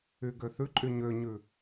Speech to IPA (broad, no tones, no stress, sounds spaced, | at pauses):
y ɡ ø θ ʉ ǃʼ y ɲ ø ɲ ʉ